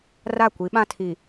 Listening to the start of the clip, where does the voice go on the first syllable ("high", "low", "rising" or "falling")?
falling